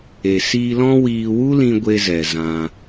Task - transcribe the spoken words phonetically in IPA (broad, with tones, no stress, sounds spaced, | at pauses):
e˨ s iː˧ l ɔ̃˦ w iː˧ w u˦ l ĩ˧ ɡʷ e˧ z ɛ˨ z ã˧